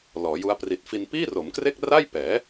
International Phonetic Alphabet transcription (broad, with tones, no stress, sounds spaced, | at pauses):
l ɔː˩˦ j u˦˥ a̯ p r i˨˩ t̚ f i˧ n p iː˥˩ r o˩˦ m k r e˥˩ k̚ r a˥˩ j p ɛː˩˦